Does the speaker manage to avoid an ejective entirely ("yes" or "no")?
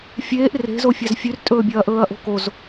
no